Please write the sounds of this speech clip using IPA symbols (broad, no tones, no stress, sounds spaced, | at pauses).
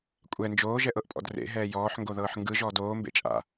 kʷʼ ɛ n d͡ʒ oː ʒ ɛ ʔ ɤ ʔ pʼ ɔ̰ d r ḛ ɦ ɛː j ɔː ħ ŋ ɡ o ð ɤː ħ ŋ ɡ ɯ ʒ ɔː d oː m b ḛ t͡ʃʼ a̰